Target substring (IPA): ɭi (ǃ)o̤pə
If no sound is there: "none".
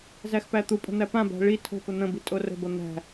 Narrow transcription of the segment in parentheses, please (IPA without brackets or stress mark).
tʰ